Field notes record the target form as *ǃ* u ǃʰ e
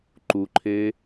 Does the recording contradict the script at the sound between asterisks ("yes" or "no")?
no